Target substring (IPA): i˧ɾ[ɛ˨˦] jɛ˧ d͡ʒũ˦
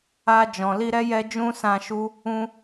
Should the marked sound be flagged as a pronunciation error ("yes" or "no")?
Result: yes